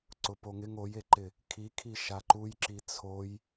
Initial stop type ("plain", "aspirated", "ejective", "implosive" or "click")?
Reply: click